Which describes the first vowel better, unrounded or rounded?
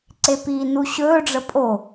unrounded